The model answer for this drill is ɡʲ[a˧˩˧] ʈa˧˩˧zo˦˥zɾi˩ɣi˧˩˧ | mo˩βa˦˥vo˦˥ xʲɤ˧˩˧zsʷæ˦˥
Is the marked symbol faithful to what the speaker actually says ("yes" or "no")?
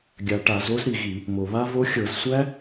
no